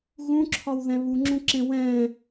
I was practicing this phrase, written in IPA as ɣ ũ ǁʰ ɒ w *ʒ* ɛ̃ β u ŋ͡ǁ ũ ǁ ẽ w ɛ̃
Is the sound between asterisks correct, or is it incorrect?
incorrect